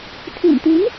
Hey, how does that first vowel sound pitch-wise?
low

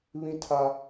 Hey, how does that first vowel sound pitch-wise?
high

